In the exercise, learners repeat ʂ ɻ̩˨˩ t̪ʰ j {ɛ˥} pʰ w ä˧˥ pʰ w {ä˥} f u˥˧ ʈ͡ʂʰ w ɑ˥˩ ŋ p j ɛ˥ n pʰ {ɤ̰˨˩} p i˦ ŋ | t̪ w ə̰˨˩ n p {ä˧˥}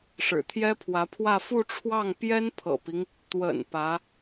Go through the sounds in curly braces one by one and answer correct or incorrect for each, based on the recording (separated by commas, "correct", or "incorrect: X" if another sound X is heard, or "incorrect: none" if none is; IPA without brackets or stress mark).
correct, incorrect: ä˥˧, correct, correct